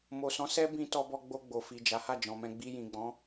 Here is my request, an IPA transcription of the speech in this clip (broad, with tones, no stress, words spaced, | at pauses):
mo˨sɔ̃˨˦ sɛ˦bĩ˧ tɔ˧bɔ˧ɡ͡bo˧ ɡ͡bo˨fi˨d͡ʒa˨˦ ha˦˨d͡ʒɔ̃˨mɛ̃˧ ɡ͡bi˧jĩ˨ɡ͡bɔ̃˨˦